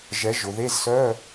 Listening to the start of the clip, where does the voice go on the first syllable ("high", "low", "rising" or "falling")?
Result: rising